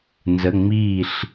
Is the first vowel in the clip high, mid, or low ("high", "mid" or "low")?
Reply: mid